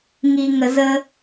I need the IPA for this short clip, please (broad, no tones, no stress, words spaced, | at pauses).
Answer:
ŋiŋəzə